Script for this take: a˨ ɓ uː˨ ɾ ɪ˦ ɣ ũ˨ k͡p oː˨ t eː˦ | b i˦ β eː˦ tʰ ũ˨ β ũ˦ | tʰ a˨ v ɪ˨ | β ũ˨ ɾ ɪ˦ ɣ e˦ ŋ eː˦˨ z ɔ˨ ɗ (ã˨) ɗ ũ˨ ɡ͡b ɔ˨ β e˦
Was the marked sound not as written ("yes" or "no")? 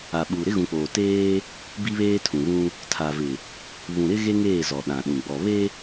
no